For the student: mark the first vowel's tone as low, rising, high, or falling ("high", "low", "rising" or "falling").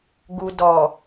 low